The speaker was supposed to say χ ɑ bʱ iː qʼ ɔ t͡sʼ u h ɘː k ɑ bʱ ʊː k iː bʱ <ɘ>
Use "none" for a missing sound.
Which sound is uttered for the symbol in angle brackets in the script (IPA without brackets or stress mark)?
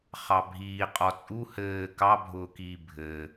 ɘ